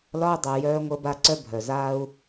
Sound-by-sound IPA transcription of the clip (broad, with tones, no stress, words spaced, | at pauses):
lɒ˥u̯dˤu˩ jœː˥ŋʷə˥ba˥ ǀœ˥bʱœ˩zaː˥u̯